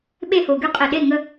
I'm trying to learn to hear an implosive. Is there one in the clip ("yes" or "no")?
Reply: yes